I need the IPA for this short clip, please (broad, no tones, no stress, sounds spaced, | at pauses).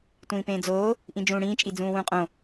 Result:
tʷ ĩː p ẽː d͡z oː | ʔ ĩ d͡ʒ ũː ɽ ĩː t͡ʃʼ i d͡z ũː w ũː qʼ õ